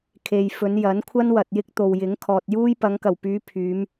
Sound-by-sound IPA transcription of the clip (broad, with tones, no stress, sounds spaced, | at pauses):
kʰ e˨ j f ɵ˨˧ n j ɐ˨˥ n kʷʰ ɐ˥ n w ɐ˨ t̚ j ɪ˥ k̚ t̪ o˨ w j ɪ˨˥ ŋ kʰ ɔː˨ t̚ j uː˥ j p ɐ˨˧ ŋ k ɐ˨˩ w p yː˨˧ pʰ yː˨˧ m